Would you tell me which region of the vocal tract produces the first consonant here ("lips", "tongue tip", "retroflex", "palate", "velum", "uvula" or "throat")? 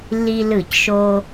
tongue tip